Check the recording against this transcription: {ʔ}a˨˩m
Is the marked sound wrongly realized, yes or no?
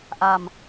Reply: no